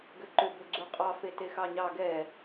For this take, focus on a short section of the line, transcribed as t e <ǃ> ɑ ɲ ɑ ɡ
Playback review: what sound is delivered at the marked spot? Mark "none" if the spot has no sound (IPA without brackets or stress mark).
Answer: x